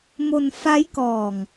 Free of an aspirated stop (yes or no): yes